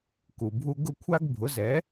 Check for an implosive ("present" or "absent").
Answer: absent